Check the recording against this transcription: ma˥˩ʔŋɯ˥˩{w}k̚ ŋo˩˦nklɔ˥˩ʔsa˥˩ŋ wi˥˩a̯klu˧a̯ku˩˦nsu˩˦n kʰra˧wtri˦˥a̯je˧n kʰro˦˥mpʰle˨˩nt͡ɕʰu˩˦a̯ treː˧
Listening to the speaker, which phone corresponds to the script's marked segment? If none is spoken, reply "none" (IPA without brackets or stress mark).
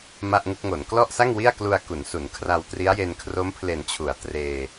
none